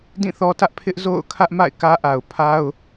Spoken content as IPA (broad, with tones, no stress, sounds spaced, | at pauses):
d ĩ˦˨ θ ɔ˦ t ä˦ ʔ pʰ ɪ˦ ʔ z o̰˦˨ ʊ̯ kʰ ä˦ ʔ m a̰˦˨ ɪ̯ k ä˦ ʔ a˨ ʊ̯ pʰ a˦ ʊ̯